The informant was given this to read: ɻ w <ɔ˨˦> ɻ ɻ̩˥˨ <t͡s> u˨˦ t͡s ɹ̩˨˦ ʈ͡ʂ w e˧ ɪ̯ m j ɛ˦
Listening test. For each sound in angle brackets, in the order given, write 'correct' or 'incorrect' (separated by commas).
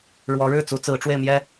correct, correct